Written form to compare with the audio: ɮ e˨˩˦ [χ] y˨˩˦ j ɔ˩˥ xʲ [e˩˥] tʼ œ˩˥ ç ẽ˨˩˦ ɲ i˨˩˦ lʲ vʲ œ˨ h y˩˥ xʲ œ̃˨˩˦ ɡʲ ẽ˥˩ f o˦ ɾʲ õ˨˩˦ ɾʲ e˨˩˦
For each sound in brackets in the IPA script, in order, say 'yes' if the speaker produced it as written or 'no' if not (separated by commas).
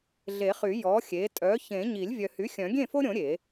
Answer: yes, yes